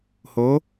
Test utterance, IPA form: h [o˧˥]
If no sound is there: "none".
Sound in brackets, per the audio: o˩˧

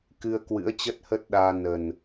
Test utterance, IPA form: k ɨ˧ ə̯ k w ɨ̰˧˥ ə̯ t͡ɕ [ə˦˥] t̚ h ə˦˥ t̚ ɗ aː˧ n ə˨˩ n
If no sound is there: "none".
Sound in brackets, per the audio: ə˦˥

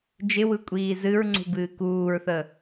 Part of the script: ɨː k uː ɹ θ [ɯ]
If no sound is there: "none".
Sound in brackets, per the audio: ə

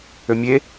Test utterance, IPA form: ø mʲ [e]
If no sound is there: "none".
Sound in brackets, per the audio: e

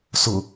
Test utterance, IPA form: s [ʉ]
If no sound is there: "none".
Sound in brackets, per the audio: ʊ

